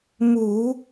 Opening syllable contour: low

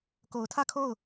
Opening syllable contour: low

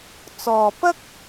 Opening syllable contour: low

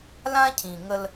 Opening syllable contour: high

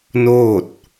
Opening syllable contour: falling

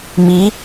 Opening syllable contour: rising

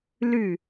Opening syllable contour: falling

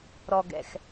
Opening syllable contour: low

